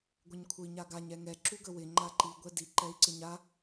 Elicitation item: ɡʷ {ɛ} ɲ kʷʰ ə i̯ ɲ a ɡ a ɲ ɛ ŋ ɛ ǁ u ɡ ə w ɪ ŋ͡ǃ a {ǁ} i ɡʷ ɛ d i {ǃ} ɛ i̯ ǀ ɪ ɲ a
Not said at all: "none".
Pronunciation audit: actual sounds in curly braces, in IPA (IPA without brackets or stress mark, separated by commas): ə, ǃ, ǃ